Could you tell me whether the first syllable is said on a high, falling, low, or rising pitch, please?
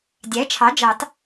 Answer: rising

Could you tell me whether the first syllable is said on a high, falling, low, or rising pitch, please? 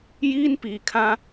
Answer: high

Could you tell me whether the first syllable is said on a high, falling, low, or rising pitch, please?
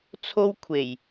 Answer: high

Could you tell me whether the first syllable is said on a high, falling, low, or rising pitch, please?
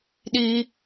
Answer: high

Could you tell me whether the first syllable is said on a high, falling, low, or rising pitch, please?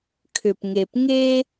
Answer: low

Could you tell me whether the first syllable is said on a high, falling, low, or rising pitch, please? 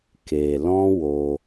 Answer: low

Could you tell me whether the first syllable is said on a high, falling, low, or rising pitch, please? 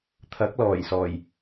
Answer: rising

